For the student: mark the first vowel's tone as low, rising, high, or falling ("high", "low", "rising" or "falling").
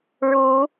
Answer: rising